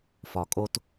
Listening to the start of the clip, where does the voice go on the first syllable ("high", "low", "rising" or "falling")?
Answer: low